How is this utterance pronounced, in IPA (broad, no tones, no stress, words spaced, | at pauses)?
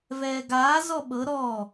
vɛːɡaː zɔɓɤ ɾɔ